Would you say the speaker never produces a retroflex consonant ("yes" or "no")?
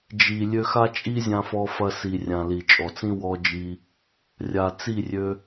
yes